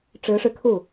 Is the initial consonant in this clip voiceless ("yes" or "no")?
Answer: yes